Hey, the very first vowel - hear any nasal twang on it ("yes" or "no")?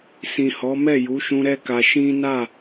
yes